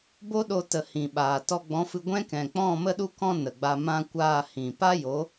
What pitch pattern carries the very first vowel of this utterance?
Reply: high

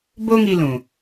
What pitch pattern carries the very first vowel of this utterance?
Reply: high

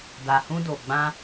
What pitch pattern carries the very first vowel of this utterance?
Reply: low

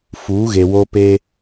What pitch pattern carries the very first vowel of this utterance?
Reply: rising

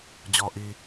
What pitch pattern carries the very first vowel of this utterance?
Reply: low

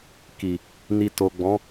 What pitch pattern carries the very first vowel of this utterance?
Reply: low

